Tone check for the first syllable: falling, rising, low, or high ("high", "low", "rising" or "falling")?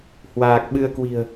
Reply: low